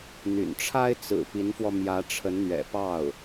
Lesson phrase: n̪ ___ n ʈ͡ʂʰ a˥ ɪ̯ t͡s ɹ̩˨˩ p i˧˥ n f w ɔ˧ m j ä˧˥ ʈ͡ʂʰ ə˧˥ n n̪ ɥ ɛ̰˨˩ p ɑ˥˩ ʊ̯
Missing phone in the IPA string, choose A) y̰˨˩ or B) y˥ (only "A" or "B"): A